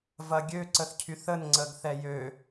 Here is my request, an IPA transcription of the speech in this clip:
vɐɡʲø ǀəθcʰyθən ŋ͡ǀəɡθɛjø

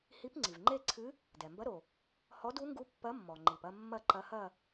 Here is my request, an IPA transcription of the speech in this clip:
hi˧˥pŋ͡ǀi˩vŋ͡ǃe˥˧ǀʰɨ˧˥ | dɛ˩mbɐ˧˥ɾo˩ | hɔ˧˥du˧˥ŋɡu˧˥ pːɐ˧˥mːɔ˩ŋ͡ǃi˩pɐ˥˧ mːɐ˥˧ǃɐ˧˥hɐ˥˧

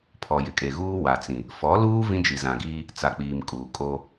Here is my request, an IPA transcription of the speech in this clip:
pʰɔ˨jɪ˨kʼe˨ɣuː˦ wa˨t͡sĩ˨ | fɔ˨˦luː˦ vĩ˦d͡ʒi˨zã˨ɡiː˦ | t͡sa˨k͡piː˨m kʼuː˨kʼo˦

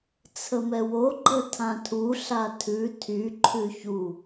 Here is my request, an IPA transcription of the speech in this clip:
t͡sʰəmɛwo ɡ͡ǃətʰãtʰu ɬatʰʉ tʰy ǃʰʉçu

